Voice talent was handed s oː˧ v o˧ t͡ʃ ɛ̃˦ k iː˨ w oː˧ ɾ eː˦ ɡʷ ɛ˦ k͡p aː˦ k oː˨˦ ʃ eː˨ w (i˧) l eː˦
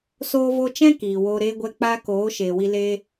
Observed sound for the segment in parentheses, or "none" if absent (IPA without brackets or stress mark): i˧